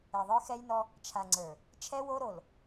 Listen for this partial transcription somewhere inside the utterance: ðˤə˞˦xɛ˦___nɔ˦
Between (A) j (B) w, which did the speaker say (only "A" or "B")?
A